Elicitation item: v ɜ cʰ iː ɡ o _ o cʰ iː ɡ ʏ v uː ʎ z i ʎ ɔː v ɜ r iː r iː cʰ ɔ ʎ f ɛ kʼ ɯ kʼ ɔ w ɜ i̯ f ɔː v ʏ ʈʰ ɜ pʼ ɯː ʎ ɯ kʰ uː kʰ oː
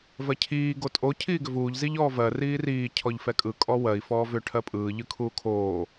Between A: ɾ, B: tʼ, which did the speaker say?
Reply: B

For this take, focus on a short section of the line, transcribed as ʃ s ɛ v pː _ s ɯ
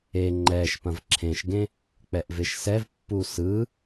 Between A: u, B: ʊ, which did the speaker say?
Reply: A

